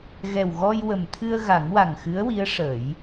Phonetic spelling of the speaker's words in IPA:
ɣ ɛ˨˩ w ɣ ɔ˧ j w ə˨˩ m t̪ʰ ɨ˧ ə̯ ɣ a˨˩˦ ŋ w a˨˩ ŋ x ɨ˧˥ ə̯ w i˧˥ ə̯ ʂ ə˨˩˦ j

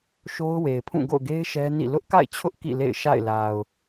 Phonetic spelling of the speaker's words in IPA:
ʃ o˦ ʊ̯ w e˨ ɪ̯ pʰ ũ˦˨ ɡ o̰˦˨ ʊ̯ ɡ e˦ ɪ̯ ʃ ɛ˦ n ḭ˦˨ l ʊ˦ ʔ k a̰˦˨ ɪ̯ t͡ɕʰ ʊ˦ ʔ k ḭ˦˨ l ḛ˦˨ ɪ̯ ʃ a̰˦˨ ɪ̯ l a˨ ʊ̯

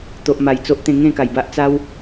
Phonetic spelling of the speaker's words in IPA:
t̪ o˨ ʔ m a˨˩ j t͡s o˦ ʔ t̪ ẽ˧ ŋ ẽ˥˧ k a˨˩ j b a˦ ʔ t͡s a˦ w

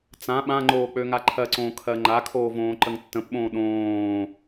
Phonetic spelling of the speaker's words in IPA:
t͡s ã ɓ ã ŋ͡ǃ oː k͡p ø ŋ a ǃʰ ɜ ǀ õː kʰ ɜ ŋ͡ǃ a kʰ oː v õː ǃ ə ŋ tː ə̃ p ɓ õː ɗ õː

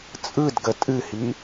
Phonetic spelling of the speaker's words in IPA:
t͡sʼ ɯ d ɡ ə tʼ ɨ h i

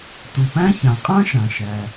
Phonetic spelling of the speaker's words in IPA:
t u˩ p æ̃˥ ç ã˩ qʼ ã˥ ʃ ã˩ ʃ æ˩

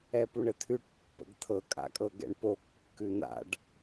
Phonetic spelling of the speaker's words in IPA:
ɛ p u ɳ ə t̪ʰ ʉ ʈ pː ə̰ ɡ t̪ʰ ɤ kʼ a̰ kʼ ɤ ɡ ɛ̰ ɳ p o kː ʉ n̪ a̰ ɖ

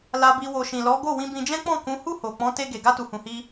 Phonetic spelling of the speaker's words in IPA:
l a˧ b i˧ w o˨ ʃ ĩ˨ l ɔ˨˦ ɡ o˦˨ w ĩ˧ b ĩ˧ d͡ʒ ɛ̃˦ k͡p ɔ̃˦˨ k ũ˨˦ h u˦˨ h o˨ k͡p ɔ̃˨˦ t e˧ ɡ e˨ ɡ a˧ t u˨ h ũ˨ h i˧

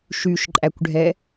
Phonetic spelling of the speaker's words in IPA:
ʃ y ʃ ǃʼ æ kʷ ɖʱ ɛ

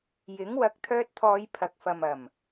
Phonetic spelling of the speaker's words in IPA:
j ɪ˨˥ ŋ w ɐ˨˥ k̚ t̪ʰ œː˧ t̚ t̪ʰ ɔː˨˧ j pʰ ɐ˨ k̚ f ɐ˨ m ɐ˨˩ m

